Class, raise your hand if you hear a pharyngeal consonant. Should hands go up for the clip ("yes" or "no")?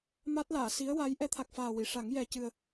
no